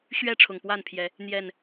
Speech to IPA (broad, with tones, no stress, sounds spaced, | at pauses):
ɕ ɥ ɛ˥˨ ʈ͡ʂʰ ʊ˨˩ ŋ p w a˥˨ n pʰ j ɛ˨˦ | n̪ j ɛ˥˨ n